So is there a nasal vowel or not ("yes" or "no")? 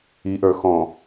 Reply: yes